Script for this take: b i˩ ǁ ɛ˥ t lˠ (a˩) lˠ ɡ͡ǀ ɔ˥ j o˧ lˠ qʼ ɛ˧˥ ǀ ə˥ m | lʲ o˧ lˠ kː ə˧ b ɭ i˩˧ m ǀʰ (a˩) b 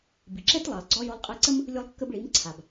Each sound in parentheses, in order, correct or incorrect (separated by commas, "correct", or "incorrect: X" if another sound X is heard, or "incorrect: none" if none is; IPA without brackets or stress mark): incorrect: ɑ˩, correct